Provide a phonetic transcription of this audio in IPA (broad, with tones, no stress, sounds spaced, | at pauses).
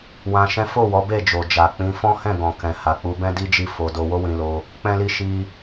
w ã˧ ʃ ɛ̃˦ f o˦˨ w ɔ˨˦ b e˦˨ d͡ʒ o˨ d͡ʒ a˨ k͡p ĩ˨˦ f ɔ̃˦ h ɛ̃˦˨ ɡ ɔ̃˨ k ɛ̃˨ h a˨ k͡p u˧ b ɛ̃˦ d i˦ d͡ʒ i˦˨ f o˧ d o˧ w o˦ w ĩ˧ l o˧ | k͡p ɛ̃˦ l i˦ ʃ i˧